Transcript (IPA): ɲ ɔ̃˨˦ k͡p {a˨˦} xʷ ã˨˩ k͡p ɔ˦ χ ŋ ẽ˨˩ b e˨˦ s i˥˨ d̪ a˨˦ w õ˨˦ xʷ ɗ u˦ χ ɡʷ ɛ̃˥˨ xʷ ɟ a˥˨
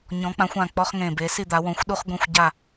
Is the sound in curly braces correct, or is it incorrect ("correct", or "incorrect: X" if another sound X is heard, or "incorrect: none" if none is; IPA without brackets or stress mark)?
incorrect: ã˨˦